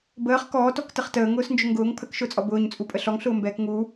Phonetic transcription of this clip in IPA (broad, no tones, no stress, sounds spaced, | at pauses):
b əː χ k ɔː t ɔ k t ə χ t əː ŋ ʊː s n d͡ʒ ʊ ŋ ɡ ʊː ŋ pʰ ə k ʃ ʊː t͡sʼ ɔ b ʊː ɲ t͡sʼ u pʼ ə ɬ ɔ ŋ ɬ ʊː m b ɛː k ŋ u